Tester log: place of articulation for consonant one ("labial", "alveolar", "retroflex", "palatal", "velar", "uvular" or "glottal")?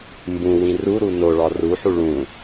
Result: labial